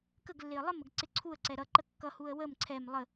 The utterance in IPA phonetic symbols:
k ə ɡ lː ɪ ə̯ lˠ ə m ə ɡ ǀ ɪ ǀʰ u ə̯ ǀ ɛ ɾ ʌ ǃ ə kː ʌ h u ə̯ w ə m ǀʰ ɛ m lˠ ə

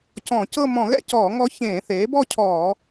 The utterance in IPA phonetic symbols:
c ɔ̃˧˩˧ c ɤ˥˧ m ɔ̃˧˩˧ ɣ ɛ̰˥˧ c ɔː˧˩˧ ŋ ɔ˧˥ ç ẽː˧˩˧ θ eː˩˥ b ɔ˥˧ cʰ ɔː˧˩˧

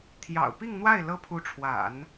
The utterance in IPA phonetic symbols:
t̪ʰ j ɑ̰˨˩ ʊ̯ p i˥˧ ŋ n̪ w a˥˩ ɪ̯ l ɤ˥ pʰ u˧˥ ʈ͡ʂʰ w a̰˨˩˦ n

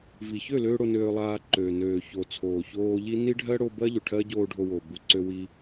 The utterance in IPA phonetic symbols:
v i˨ ç ø˦˨ l øː˧ ɽ o˧ n øː˧ lˠ aː˧ ǃ øː˨ n øː˨ ç o˨ t͡sʰ oː˨ ç oː˧ ʎ i˦ n i˦ ɖʱ ɜ˦ ɽ o˧ b ɜ˦ ʎ ø˨ ʈʰ ɜ˦ ɟ oː˧ ɖʱ o˧ w o˨ b u˧ ǀ ø˧ w i˧

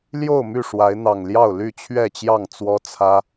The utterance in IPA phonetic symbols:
l j o˥˨ ʊ̯ m y˥˨ ʂ w a˨˦ ɪ̯ n̪ ɑ˨˩ ŋ l j ɑ˥˨ ʊ̯ l y˥˨ t͡ɕʰ ɥ ɛ˥˨ t͡ɕ j ɑ˥˨ ŋ t͡s w ɔ˦ t͡sʰ ä˦

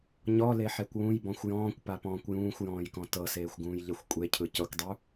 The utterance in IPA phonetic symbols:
ɲ ɔ l e ħ e kʷ w ũ j b ɔ̃ xʷ j ɔ̃ː kʷ p a p ɔ̃ː kʷ j ũː xʷ j ɔ̃ː j k ɔ̃ t ɤ s eː xʷ ɡ ũː j ʎ e xʷ kʷʼ e cʰ ɯ c ɤ kʷ dˤ u

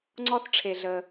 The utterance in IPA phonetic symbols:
ŋ͡ǀ ɔ˦ θ ʈ͡ʂʰ e˩ ɮ ə˩

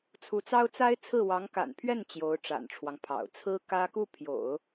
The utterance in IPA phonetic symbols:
t͡sʰ u˧˥ t͡s ɑ˥ ʊ̯ t͡s a˥ ɪ̯ t͡sʰ ɹ̩˥˩ w ɑ˧˥ ŋ k a̰˨˩ n pʰ ɥ ɛ˥˩ n t͡ɕ j o˧˥ ʊ̯ ʈ͡ʂ a̰˨˩ n ʈ͡ʂʰ w ɑ˦ ŋ pʰ ɑ̰˨˩ ʊ̯ t͡sʰ ɹ̩˥ k ä˥ k u˥˩ pʰ j o̰˨˩˦ ʊ̯

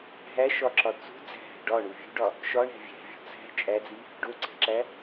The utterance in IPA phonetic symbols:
ɦ æ ʃ ɒ ǁ ɒ t͡s ṳ d͡z æ̤ ɦ æ̤ ɖ ɒ ɳ u vʲ ṳ ɖ ɒ | ʃ ɒ ɳ æ̤ vʲ æ̤ vʲ o̤ t͡s æ̤ t͡ʃʼ æ d͡z i | ɖ o ǀ æ̤ ǁ æ

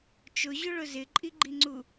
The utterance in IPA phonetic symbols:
t͡ʃ ʊ ʑ ʊ ɭ ʊ z ɪ ǃʼ i ɡ͡ǃ i ŋ͡ǀ u

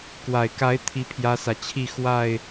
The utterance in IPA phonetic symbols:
k w a˨˩ ɪ̯ k a˨˦ ɪ̯ t̪ʰ i˦ pʰ j ä˦ s ä˨ t͡ɕʰ i˥˨ x w a˥˨ ɪ̯

